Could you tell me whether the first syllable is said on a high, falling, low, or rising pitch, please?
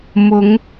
rising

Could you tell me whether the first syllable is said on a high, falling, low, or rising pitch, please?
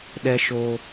high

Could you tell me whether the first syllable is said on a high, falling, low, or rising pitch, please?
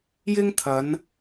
high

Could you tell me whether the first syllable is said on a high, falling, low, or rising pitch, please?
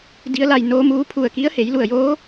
rising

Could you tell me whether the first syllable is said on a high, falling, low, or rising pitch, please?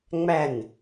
falling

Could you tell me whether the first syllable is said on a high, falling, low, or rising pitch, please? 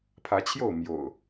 rising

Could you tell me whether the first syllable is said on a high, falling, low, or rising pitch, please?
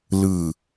low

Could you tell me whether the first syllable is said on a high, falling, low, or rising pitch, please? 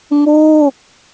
falling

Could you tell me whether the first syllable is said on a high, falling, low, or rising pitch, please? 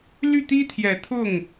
falling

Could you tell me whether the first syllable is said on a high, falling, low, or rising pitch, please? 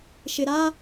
low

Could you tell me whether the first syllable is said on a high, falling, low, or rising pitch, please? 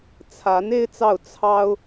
rising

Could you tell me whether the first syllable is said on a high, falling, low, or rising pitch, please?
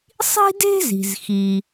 high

